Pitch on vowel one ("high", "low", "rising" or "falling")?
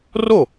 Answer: falling